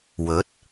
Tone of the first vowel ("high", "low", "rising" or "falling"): rising